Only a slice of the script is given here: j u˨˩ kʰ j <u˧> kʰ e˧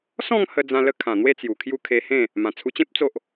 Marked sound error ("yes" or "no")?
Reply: yes